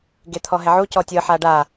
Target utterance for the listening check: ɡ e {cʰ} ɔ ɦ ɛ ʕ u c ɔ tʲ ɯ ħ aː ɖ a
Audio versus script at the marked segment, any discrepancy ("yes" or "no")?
yes